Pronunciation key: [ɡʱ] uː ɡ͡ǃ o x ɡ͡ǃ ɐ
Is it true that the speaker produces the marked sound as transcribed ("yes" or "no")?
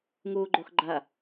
no